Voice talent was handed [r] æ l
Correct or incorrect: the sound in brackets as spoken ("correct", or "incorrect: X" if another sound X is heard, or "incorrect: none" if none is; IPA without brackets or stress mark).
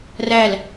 correct